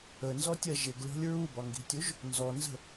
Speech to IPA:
ə n z ɔ tʲ ɜ ʒ ɪ ɡ lʲ ɔ̤ lʲ ɹ u b ɒ ŋ ɡ i̤ tʲ u ʒ | n z ɔ n z ə̤

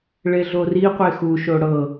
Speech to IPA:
ɭ e ɮ o r i qʷ e x u ʃ o ɽ ɤ

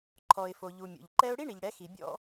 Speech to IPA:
ǃʰ ɔ˨ ɪ̯ f o˨ ʎ u˨ mʲ o̰˨ ʎ ǃ ɛ˥ ʊ̯ ɽ i˥ ɳ i˨ ʎ ɽ ɛ˨˦ x i˨ bʲ ɔ̰˥

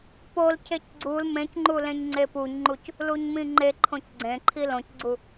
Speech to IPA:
p o l cʰ e c ɡ͡ǀ u l m ẽ c ŋ͡ǃ u l ẽ ɲ ŋ͡ǀ e p u ɲ ŋ͡ǃ u c | l u ɲ m ĩ ŋ͡ǃ e ǃʰ õ c ɡ͡ǀ ẽ ǃʰ i l õ c ɡ͡ǀ u

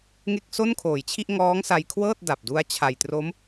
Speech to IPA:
ŋ e˥˩ k̚ s o˥˩ n kʰ oː˨˩ j t͡ɕʰ i˥˩ ʔ ŋ ɔː˦˥ ŋ s a˧ j kʰ w ɤː˥˩ t̚ d a˨˩ p̚ d u˦˥ a̯ t͡ɕʰ a˨˩ j t r o˦˥ m

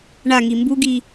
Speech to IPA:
ɳ a ŋ i m b u ɡ i

